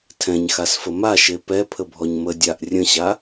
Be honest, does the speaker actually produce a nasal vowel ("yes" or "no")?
yes